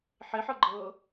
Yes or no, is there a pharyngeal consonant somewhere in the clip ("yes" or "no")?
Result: yes